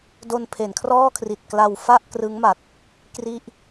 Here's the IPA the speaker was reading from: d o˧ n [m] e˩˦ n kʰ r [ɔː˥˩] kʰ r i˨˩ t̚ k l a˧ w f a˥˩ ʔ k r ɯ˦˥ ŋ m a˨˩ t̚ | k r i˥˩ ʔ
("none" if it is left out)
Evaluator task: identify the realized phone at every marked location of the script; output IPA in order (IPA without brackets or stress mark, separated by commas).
pʰ, ɔː˥˩